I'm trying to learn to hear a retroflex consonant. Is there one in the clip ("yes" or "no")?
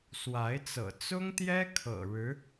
yes